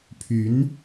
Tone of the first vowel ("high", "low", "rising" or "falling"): rising